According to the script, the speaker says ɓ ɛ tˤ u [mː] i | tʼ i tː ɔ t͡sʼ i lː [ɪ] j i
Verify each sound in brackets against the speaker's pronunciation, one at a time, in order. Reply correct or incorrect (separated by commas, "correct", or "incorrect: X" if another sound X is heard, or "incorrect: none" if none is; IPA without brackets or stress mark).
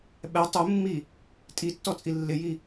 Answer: correct, correct